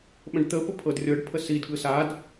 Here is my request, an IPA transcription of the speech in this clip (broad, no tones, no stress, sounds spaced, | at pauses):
ɓ ə̃ ɖ t̪ ə p ə pʰ ɤ d rʲ ɤ ɖ pʰ ə s i d ɠ ɯ s a d